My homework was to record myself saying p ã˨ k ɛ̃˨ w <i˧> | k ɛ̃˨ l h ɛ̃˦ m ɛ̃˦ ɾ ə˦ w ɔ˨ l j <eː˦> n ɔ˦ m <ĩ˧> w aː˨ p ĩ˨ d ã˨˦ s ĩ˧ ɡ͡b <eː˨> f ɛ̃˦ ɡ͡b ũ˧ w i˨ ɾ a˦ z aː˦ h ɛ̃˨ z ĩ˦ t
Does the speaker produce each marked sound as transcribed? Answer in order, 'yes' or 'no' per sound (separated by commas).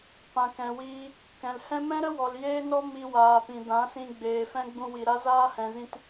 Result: no, yes, no, yes